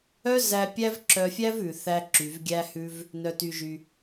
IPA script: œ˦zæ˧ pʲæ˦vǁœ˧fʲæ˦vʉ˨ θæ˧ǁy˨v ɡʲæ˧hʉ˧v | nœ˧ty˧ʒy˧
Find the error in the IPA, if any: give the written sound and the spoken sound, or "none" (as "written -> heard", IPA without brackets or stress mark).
none